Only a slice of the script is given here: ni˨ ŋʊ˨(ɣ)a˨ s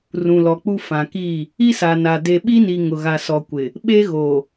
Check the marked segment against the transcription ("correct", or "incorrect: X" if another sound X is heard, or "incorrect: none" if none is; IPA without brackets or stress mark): correct